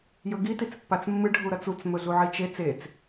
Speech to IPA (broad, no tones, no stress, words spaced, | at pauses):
jɵɡi tit͡spːat͡smːɨ ɖʱuɾɐt͡sut͡s mɵɮuʕit͡ʃe t͡set͡s